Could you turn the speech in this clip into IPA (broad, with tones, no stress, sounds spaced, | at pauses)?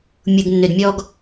mʲ u˨ ɡ nː ø˨ d mʲ ɔ˨ ɡ